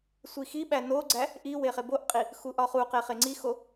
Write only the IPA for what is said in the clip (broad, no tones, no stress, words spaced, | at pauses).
sʷixiɓæ noɡ͡ǀæ | ʔi weχeboʔqʼi | xuʔɒχuqe χeŋ͡ǀixo